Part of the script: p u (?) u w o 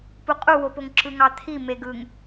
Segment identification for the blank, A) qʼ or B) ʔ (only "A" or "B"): A